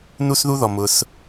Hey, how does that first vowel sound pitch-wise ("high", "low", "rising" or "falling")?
high